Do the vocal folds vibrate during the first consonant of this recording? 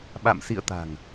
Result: yes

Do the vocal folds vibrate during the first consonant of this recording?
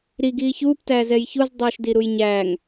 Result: yes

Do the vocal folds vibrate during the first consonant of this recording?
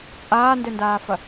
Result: no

